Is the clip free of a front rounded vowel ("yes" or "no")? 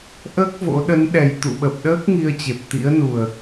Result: yes